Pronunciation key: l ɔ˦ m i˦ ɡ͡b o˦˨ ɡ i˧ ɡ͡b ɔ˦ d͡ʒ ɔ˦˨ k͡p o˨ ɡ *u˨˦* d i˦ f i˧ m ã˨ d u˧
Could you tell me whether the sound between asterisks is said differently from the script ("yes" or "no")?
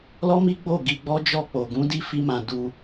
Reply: yes